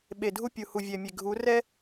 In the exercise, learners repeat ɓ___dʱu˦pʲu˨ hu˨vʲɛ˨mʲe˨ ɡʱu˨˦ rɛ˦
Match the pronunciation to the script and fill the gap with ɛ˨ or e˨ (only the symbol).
e˨